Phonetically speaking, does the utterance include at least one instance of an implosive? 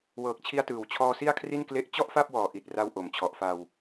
no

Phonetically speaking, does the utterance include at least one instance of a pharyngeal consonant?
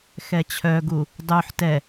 yes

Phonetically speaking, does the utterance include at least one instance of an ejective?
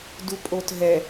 yes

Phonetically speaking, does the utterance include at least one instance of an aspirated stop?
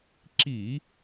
no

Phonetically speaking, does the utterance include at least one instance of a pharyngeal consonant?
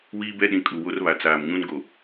no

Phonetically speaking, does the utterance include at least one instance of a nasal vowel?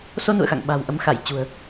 no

